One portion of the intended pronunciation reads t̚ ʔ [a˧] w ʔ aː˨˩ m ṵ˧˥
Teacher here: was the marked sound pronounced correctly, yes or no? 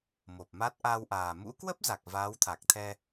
yes